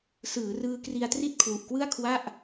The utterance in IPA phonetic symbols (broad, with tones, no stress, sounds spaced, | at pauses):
s ɯː˩˦ r ɯː˧ k r i˧ a̯ t r i˥˩ t̚ kʰ w u˨˩ ʔ k w ɯ˥˩ a̯ kʰ w a˥˩ ʔ